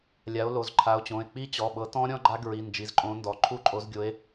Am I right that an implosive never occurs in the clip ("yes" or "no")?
no